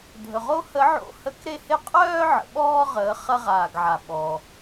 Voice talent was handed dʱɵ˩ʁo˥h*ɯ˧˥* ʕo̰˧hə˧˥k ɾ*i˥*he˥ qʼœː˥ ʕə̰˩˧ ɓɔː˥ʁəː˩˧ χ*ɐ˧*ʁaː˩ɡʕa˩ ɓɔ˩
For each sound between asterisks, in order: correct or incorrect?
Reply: incorrect: ə˧˥, incorrect: e˥, correct

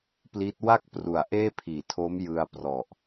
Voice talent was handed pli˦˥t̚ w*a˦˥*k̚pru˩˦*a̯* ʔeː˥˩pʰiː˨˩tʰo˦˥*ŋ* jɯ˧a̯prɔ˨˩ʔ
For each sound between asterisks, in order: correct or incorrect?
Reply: incorrect: a˥˩, correct, incorrect: m

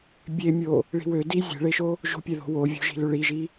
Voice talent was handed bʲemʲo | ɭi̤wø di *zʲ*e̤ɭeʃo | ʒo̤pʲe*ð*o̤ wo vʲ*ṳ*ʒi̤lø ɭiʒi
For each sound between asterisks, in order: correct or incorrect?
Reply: correct, correct, incorrect: o̤

